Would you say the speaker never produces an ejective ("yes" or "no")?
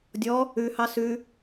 yes